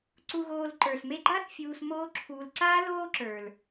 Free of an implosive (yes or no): yes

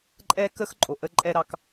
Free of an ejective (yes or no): no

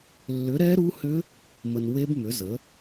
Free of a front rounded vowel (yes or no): no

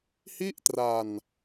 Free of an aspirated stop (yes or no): yes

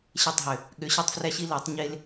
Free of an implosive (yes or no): no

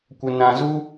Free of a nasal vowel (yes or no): no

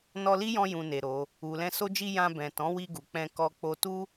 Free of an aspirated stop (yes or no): yes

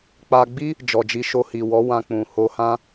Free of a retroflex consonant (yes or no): yes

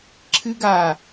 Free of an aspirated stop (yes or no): no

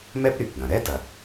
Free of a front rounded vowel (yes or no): no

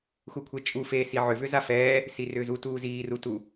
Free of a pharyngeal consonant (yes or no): no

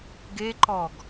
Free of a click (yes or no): no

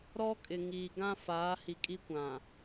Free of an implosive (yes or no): yes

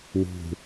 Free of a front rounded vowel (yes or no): yes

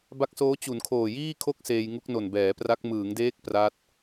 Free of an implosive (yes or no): yes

